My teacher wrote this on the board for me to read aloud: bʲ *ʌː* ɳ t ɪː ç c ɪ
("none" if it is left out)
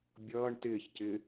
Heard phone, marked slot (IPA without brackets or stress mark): ʌː